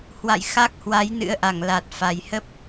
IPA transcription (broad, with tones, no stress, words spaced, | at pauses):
hwa̰˧˨j xa˦˥k̚hwa˨˦j nɨ̰˧˥ə̯ʔa˧˩ŋla˨˩t̚ fa˨˩jhə˦˥p̚